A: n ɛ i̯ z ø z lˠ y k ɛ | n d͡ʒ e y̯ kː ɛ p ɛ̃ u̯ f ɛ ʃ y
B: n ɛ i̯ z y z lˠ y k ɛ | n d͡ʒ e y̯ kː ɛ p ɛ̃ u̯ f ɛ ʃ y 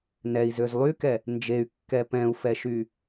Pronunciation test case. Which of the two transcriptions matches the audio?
A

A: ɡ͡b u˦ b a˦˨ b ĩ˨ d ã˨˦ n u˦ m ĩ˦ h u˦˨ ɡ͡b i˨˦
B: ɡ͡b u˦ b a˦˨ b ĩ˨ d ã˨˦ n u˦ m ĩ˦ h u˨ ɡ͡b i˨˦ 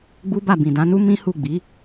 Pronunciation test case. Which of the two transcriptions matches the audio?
A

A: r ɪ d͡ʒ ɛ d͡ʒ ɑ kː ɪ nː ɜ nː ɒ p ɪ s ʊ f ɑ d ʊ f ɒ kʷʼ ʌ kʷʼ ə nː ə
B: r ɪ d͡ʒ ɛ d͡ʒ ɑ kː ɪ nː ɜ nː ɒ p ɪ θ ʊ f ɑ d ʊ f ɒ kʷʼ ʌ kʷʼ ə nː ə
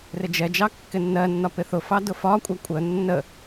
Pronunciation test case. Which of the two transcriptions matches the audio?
B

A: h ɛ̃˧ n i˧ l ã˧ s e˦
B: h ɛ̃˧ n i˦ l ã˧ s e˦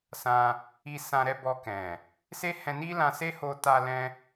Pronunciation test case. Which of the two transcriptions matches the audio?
B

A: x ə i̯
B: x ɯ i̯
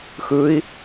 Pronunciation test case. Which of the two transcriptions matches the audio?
B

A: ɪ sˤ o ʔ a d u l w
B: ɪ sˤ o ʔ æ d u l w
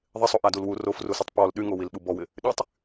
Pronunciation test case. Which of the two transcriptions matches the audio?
A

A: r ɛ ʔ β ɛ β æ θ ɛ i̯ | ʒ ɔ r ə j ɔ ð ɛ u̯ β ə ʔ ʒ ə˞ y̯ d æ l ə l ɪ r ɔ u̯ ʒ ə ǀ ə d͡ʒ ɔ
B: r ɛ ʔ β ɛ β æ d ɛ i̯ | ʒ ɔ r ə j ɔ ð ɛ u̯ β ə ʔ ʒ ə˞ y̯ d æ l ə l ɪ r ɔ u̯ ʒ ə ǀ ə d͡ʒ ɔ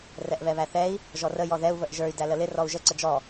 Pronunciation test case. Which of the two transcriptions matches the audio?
A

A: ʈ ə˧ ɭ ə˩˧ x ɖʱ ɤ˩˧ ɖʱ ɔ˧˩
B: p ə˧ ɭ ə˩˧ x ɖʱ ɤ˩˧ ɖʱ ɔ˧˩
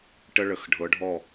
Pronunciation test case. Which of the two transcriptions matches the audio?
A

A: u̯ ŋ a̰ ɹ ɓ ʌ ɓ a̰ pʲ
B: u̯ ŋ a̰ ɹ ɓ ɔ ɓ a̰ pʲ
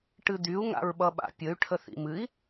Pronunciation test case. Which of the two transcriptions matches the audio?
A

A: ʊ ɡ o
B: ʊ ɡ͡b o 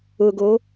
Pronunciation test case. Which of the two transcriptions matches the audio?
A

